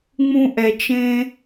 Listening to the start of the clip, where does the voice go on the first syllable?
high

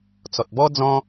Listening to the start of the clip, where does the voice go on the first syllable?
low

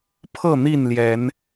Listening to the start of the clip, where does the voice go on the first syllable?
falling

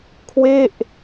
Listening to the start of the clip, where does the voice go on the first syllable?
falling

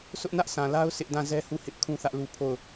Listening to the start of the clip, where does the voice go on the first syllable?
high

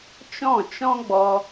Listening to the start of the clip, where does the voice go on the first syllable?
falling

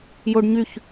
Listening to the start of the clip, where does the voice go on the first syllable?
high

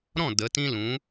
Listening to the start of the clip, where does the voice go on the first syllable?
falling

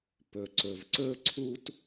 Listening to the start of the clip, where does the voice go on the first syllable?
low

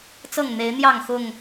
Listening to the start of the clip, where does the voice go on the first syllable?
falling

